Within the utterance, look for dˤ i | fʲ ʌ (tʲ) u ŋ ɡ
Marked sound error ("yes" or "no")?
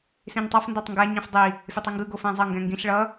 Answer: yes